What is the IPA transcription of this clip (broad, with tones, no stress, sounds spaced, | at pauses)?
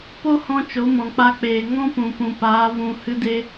p o˦ h ɔ̃˧ t͡ʃ o˨˦ m ɔ̃˨ k͡p a˧ k͡p eː˨ ŋ ɔ̃˦ p ũ˨ p ũ˨ p aː˨˦ v ũ˧ h ɨ˦ d e˦